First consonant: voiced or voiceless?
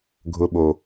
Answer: voiced